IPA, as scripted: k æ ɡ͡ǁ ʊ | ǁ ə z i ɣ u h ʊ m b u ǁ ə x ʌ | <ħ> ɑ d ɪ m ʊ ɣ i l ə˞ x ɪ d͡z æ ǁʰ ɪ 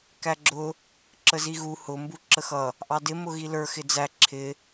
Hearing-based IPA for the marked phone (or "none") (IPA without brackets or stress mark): ʔ